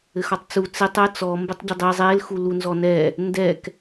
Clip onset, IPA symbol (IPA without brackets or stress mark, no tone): ɘ